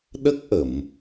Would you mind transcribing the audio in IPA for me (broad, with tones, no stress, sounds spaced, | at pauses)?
ɗ ə˦˥ k̚ ʔ ə˨˩˨ m